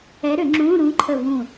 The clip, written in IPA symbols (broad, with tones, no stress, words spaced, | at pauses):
ɛ˧˥ɾʏ˨˩˦ŋ͡ǁũ˧˥˧ɾũ˧˥ ǃʰə˧˩vũ˧˩